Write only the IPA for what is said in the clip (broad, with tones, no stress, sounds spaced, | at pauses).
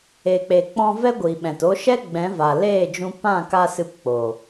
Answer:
e˨ k͡p e˨ k͡p ɔ̃˧ v ɛ˦ ɡʷ iː˨ ɓ ɛ̃˨ t o˦ ʃ ɛ˦ ɡ͡b ɛ̃˨˦ v a˨ l eː˦˨ d͡ʒ ũ˧ p ã˦˨ k a˧ s ɨ˧ p k͡p o˨